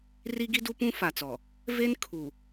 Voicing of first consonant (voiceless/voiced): voiced